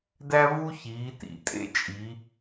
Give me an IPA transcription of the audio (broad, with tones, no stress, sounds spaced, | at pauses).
d æ˥ v u˥ ç iː˩˧ t ḭ˩˧ tʼ ḛ˥ t͡ʃʼ i˩˧